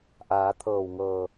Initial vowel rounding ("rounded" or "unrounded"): unrounded